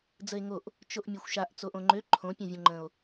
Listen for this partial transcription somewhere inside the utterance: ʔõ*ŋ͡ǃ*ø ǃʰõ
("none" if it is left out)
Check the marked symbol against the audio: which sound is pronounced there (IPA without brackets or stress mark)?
ŋ͡ǃ